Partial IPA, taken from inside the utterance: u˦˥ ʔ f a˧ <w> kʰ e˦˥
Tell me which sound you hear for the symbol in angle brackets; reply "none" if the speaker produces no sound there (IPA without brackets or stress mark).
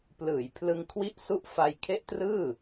j